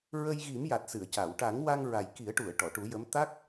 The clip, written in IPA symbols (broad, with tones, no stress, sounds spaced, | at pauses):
ɹ ə˧ j ɣ i˨˩˦ m j a˨˩ t̚ s ɨ˨˩˨ ə̯ c a˨˩˨ w ʈ a˨˩˦ ŋ w a˧ ŋ ɹ a˨˩ j k i˨˩˦ ə̯ ʈ u˨˩˨ ə̯ ʈ ɔ˨˩˨ ʈ u˨˩˦ j ə˧˥ m t̪ a˦˥ k̚